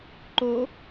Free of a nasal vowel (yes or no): yes